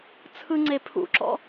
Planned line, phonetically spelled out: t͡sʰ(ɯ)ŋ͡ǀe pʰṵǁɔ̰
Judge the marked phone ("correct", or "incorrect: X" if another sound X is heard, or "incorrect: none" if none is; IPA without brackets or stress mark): correct